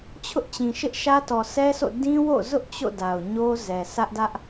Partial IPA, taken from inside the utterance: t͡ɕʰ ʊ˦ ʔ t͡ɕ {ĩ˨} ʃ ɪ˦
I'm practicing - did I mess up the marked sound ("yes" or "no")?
no